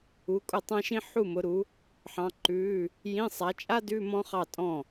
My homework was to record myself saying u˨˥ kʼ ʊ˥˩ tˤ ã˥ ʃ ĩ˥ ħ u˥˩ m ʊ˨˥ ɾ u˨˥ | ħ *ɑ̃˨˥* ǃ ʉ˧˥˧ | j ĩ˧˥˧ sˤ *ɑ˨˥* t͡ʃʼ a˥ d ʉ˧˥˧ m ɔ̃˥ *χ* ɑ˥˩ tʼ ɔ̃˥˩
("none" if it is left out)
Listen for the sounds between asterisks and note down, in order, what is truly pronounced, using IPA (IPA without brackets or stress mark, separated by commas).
ɑ̃˨˥, a˨˥, χ